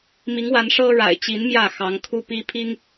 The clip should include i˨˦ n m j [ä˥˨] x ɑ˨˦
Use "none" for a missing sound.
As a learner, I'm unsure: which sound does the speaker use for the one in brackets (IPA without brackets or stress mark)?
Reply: ä˥˨